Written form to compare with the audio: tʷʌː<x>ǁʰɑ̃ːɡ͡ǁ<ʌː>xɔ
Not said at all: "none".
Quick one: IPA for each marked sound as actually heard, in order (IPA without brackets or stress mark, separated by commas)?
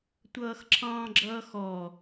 x, ʌː